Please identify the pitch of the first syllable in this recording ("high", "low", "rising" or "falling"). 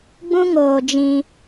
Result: high